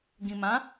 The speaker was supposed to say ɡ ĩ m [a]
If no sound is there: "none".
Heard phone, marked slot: ã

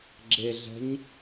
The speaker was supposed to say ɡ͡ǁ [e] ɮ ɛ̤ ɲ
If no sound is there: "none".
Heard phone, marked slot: e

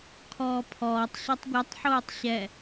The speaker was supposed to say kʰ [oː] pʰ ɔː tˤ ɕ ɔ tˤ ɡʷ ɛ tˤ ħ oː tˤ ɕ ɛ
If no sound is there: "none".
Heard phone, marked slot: ɔː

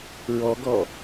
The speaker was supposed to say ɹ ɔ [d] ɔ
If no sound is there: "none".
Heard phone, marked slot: ɡ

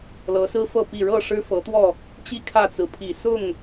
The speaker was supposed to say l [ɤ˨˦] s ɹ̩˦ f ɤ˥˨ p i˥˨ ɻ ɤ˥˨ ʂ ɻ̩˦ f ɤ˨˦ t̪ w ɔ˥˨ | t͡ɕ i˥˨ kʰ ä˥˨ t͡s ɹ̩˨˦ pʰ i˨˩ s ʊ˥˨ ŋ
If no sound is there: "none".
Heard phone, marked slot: ɤ˨˦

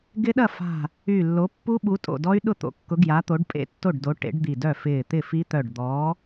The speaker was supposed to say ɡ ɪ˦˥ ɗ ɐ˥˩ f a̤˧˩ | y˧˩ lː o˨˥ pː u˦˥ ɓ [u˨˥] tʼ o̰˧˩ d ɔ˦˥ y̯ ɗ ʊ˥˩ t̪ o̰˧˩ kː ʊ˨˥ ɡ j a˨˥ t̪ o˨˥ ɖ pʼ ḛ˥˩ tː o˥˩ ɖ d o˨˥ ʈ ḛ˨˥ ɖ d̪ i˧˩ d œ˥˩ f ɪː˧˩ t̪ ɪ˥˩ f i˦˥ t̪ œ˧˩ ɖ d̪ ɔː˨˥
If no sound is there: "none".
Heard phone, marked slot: u˨˥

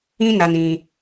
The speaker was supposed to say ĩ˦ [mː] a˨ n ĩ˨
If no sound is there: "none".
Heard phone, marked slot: n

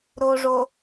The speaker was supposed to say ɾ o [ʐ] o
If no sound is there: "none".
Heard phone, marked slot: ʐ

